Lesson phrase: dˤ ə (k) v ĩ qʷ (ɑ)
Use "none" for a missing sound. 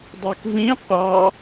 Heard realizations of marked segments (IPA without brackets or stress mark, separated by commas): k, ɑ